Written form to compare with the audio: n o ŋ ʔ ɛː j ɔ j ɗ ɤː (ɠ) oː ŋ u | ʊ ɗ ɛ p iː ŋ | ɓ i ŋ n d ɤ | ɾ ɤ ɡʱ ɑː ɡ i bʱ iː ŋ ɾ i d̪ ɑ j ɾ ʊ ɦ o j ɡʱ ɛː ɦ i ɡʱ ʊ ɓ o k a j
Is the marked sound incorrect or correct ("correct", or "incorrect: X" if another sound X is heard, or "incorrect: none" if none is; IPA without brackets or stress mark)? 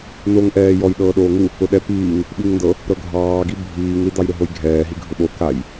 incorrect: ɗ